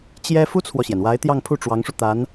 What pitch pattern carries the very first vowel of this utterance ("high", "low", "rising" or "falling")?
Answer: high